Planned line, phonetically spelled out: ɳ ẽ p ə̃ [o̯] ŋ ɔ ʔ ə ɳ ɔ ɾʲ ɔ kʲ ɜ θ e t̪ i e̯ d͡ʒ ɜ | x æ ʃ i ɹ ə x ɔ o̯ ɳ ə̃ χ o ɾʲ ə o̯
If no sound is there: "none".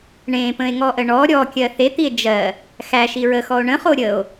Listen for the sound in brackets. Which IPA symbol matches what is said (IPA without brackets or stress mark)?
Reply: e̯